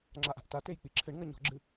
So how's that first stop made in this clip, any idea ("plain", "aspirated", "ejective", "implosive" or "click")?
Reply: click